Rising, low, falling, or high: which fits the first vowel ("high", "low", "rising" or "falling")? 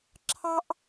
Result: high